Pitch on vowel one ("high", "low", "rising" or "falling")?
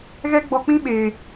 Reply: high